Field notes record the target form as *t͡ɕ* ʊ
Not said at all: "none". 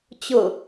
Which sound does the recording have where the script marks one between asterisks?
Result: t͡ɕ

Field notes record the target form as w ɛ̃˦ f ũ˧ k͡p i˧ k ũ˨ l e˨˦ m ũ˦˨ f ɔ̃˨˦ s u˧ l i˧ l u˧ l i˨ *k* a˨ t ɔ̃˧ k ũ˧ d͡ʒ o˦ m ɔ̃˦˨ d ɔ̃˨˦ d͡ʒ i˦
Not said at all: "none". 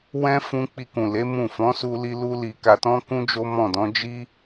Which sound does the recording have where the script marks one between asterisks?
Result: k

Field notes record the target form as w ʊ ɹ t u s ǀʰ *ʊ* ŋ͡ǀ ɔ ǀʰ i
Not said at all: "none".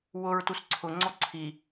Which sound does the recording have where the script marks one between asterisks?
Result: ʊ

